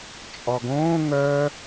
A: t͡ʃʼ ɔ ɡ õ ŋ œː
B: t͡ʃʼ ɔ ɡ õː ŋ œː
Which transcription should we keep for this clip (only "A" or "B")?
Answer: B